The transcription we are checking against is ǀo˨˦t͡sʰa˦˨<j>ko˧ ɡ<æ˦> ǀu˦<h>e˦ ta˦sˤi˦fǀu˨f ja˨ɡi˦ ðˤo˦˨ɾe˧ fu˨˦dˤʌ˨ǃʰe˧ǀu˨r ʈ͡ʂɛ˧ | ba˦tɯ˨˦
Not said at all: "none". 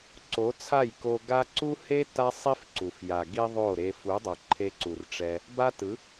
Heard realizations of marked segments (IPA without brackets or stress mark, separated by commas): j, a˦, h